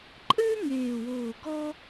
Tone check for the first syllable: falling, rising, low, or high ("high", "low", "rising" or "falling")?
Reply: high